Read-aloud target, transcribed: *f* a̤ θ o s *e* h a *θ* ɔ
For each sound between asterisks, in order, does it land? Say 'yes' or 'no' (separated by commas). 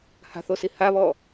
no, no, no